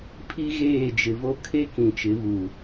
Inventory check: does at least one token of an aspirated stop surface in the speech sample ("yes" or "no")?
yes